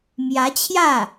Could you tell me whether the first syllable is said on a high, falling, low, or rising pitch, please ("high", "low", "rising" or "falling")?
rising